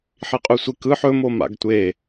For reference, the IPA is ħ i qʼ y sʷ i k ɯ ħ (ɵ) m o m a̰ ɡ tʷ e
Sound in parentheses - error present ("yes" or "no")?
no